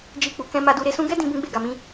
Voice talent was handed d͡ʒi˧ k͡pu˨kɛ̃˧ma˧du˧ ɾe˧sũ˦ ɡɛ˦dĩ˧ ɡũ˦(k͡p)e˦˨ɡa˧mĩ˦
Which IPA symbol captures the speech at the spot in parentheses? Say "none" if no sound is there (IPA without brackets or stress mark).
ɡ͡b